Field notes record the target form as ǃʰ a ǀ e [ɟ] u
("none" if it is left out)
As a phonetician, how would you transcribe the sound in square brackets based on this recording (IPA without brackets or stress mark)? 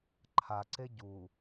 ɟ